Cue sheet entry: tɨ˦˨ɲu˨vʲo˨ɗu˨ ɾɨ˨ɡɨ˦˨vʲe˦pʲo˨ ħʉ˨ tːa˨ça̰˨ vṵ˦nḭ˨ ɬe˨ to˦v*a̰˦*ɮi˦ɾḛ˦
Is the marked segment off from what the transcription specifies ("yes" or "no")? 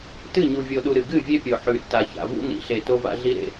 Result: no